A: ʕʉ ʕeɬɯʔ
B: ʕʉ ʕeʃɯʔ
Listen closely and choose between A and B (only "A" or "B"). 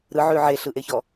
A